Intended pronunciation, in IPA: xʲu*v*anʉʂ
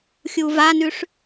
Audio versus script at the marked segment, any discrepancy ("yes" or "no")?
no